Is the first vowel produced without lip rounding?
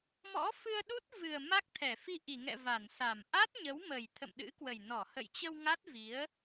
no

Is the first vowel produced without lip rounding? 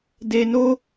yes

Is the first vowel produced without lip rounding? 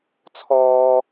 no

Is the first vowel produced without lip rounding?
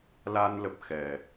yes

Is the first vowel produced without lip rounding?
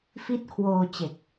yes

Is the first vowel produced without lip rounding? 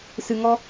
yes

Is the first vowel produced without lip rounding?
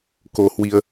no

